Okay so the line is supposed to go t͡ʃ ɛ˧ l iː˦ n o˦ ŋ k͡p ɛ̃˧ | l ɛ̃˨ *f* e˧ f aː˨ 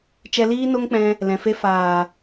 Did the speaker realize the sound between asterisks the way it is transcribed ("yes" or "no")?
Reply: yes